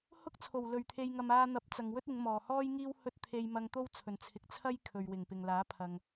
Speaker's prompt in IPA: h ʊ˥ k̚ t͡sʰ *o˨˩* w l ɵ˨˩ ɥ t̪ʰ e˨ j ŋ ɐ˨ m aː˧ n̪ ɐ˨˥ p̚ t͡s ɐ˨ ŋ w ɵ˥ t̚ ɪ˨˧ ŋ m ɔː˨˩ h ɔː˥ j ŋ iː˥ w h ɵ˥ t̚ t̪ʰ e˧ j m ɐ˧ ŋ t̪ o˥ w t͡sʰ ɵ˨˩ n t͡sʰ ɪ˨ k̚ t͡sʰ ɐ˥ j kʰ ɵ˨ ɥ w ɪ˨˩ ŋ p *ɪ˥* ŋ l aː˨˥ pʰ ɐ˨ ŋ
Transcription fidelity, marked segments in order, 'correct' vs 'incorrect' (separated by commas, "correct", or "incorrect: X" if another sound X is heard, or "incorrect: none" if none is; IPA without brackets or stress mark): correct, incorrect: ɪ˨